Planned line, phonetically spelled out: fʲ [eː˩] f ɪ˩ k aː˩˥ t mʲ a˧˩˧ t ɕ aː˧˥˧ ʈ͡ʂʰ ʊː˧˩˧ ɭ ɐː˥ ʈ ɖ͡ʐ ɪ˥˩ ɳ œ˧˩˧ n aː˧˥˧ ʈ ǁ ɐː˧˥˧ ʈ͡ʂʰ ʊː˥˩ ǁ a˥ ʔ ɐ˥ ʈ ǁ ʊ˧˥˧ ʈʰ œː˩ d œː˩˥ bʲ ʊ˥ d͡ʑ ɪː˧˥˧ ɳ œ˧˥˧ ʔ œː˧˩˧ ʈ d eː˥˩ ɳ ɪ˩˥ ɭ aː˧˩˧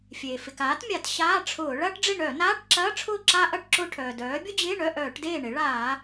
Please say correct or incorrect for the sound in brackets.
correct